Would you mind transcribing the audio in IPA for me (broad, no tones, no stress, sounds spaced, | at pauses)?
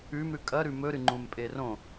ʉ m ɾ ʉ kʼ ɐ ɾ ʉ m ɵ ɾ ɨ ŋ͡ǃ ũ m pʼ e r õ